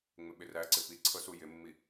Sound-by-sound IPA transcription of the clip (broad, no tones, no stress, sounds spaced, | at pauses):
ŋ͡m ɪ ɓ ɪ r æ ǀ ɪ p i ǀʰ ɤ s u j ɪ mː i